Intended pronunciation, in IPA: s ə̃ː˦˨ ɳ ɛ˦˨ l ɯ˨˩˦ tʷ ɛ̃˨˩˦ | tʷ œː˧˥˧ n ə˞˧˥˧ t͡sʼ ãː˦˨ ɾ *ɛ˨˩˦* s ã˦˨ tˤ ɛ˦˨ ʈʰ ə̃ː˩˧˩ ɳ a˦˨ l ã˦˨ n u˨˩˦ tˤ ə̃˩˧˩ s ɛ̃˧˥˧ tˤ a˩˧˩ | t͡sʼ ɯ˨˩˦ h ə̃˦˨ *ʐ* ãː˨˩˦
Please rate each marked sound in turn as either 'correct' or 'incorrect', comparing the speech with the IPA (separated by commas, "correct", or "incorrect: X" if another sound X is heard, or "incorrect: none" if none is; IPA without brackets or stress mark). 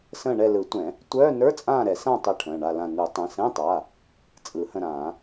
correct, incorrect: ɾ